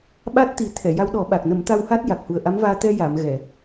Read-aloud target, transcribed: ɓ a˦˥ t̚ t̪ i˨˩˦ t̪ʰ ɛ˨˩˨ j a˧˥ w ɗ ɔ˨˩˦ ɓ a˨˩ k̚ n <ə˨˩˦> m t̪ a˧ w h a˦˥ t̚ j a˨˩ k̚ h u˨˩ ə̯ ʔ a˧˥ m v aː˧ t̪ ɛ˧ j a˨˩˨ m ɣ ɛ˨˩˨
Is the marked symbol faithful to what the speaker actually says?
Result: yes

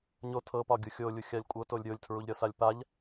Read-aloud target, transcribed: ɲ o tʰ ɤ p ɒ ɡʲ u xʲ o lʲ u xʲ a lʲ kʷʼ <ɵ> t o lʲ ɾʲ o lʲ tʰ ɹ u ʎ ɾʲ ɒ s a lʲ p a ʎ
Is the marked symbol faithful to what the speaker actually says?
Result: no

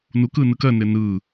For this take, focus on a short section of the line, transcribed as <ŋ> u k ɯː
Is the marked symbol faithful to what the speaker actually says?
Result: no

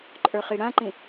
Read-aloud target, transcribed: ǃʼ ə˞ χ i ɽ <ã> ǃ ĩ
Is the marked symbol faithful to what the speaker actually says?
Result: yes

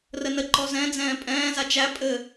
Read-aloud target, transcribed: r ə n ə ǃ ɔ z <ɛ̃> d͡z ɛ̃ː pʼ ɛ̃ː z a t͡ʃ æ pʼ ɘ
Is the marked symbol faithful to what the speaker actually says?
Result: yes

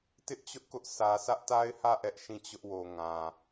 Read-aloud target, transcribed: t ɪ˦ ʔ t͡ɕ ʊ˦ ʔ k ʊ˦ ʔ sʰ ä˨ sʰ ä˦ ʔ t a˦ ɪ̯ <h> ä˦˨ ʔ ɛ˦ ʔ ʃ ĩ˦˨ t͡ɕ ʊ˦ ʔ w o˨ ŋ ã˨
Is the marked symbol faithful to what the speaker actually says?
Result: yes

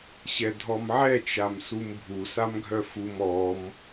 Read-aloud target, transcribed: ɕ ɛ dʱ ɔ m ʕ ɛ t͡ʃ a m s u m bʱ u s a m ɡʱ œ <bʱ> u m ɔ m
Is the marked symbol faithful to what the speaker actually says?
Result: no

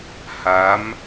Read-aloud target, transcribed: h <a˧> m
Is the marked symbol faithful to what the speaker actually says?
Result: no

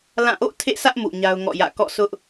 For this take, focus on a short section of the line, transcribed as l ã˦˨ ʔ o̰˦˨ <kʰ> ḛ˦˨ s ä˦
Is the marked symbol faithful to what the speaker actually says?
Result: no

